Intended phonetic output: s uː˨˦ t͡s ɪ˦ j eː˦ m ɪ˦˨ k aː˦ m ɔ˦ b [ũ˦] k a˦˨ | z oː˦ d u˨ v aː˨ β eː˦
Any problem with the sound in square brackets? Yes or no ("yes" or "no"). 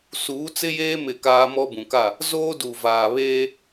yes